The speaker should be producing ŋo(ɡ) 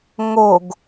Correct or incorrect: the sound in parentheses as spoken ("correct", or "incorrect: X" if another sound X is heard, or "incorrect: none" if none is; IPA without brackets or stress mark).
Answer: correct